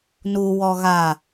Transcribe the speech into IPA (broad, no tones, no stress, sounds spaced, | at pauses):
n u w ɔ ɣ a